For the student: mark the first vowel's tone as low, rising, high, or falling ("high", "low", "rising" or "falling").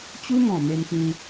high